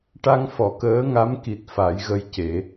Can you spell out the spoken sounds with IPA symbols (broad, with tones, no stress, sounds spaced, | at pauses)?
ʈ a˧ ŋ f ɔ˨˩˨ k əː˧˥ ŋ a˧˥ m k i˨˩ t̚ f a˨˩˦ j ɣ ə˧ j c e˨˩˦